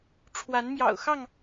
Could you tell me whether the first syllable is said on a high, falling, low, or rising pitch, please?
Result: rising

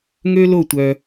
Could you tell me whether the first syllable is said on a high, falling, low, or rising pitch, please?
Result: high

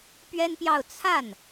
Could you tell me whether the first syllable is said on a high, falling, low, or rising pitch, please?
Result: high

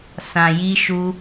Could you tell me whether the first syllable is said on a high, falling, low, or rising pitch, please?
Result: low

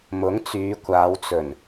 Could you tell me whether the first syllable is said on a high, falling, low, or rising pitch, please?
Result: rising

